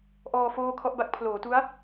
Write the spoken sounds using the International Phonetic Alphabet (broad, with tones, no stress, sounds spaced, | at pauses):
ʔ ɔː˧ f oː˥˩ kʰ ɔ˥˩ ʔ b a˥˩ k̚ pʰ l oː˩˦ t u˦˥ a̯